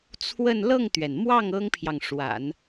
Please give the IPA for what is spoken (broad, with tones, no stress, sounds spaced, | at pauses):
t͡sʰ w ə˥˧ n l ɤ˥˩ ŋ t̪ ɥ ɛ˩ n m w ɑ˥˩ ŋ ɤ˥ ŋ pʰ j ɑ˨ ŋ ʂ w a̰˨˩˦ n